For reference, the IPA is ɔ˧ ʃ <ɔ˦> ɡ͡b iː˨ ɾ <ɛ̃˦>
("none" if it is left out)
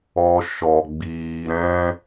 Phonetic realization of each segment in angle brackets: ɔ˨, ɛ̃˦

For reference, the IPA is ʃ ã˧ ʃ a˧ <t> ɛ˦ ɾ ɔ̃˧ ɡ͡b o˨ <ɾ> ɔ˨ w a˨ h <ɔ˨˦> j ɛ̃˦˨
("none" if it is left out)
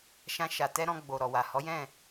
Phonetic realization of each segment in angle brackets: t, ɾ, ɔ˨˦

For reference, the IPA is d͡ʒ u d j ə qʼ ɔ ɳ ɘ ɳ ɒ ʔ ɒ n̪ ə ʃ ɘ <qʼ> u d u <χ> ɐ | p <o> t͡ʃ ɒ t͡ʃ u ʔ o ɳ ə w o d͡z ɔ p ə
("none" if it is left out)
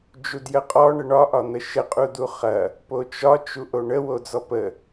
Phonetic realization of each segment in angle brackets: qʼ, χ, o

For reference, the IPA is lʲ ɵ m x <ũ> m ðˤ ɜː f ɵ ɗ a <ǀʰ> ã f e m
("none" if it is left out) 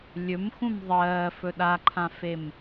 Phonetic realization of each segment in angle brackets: ũ, ǃʰ

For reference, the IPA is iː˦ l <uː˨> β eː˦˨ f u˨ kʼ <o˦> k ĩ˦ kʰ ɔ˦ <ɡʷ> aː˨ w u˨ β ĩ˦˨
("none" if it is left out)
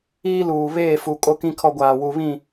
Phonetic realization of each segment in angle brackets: uː˨, o˦, ɡʷ

